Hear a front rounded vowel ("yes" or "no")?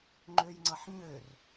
yes